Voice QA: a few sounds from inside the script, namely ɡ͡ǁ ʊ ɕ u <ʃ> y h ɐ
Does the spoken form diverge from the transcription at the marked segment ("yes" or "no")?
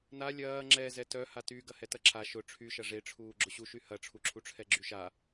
no